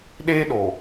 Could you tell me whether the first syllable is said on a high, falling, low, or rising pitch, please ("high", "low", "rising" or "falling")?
high